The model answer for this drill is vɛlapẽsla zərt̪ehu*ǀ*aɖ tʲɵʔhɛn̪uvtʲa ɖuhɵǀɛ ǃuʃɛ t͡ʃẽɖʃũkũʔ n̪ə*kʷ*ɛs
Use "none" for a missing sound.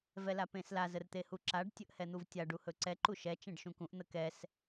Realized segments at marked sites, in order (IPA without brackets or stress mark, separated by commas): ǁ, k